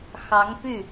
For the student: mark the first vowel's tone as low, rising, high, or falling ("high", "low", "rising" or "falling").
rising